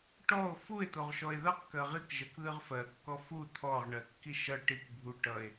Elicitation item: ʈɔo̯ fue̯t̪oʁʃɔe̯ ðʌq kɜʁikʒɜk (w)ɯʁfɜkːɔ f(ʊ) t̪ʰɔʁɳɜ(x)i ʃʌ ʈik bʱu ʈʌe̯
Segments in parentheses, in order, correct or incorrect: incorrect: ð, incorrect: u, incorrect: kː

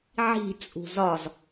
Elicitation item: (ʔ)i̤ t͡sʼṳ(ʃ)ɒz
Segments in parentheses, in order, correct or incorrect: incorrect: ʕ, incorrect: z

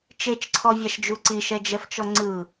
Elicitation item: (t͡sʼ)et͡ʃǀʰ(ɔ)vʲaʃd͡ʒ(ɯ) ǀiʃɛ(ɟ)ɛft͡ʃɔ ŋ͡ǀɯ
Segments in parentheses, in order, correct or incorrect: incorrect: t͡ʃ, correct, incorrect: u, incorrect: d͡ʒ

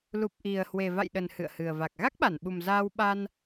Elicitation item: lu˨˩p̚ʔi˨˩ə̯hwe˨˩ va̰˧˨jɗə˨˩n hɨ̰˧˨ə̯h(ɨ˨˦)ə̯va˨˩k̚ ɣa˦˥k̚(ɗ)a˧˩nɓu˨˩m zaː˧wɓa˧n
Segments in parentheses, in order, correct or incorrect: incorrect: ɨ˨˩, incorrect: ɓ

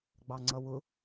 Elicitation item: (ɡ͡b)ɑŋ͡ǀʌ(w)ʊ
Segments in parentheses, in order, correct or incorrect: correct, correct

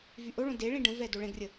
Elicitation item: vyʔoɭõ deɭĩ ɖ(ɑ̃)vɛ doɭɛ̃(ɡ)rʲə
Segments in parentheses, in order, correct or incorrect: incorrect: ə̃, correct

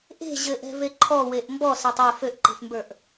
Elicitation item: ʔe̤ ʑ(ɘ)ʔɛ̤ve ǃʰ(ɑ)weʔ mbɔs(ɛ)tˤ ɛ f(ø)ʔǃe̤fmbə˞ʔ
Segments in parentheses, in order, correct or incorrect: correct, incorrect: ɔ, correct, correct

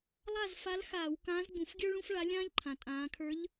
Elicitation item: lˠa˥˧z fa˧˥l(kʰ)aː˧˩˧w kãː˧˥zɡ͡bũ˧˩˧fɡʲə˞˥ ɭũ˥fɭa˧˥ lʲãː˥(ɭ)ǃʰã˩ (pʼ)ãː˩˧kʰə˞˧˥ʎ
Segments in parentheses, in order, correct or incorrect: incorrect: x, incorrect: ʎ, incorrect: tʼ

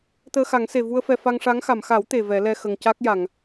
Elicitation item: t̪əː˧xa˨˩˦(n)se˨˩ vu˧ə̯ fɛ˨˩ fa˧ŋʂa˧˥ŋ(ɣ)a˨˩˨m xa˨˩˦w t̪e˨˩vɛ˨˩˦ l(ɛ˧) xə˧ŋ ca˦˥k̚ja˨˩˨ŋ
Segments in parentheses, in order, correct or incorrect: incorrect: ŋ, incorrect: x, correct

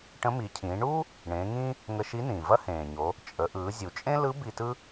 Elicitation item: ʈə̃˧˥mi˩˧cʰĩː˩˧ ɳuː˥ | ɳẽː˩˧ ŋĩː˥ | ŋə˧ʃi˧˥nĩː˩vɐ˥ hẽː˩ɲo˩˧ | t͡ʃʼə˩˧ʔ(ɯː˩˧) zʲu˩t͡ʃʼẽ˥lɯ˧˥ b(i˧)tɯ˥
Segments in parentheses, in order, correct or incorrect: correct, correct

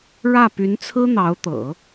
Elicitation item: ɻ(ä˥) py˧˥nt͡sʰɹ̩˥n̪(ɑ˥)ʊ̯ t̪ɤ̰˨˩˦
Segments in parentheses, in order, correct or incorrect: incorrect: ä˥˩, incorrect: ɑ˧˥

